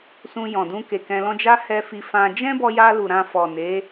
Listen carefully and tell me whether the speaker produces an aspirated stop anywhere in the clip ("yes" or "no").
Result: no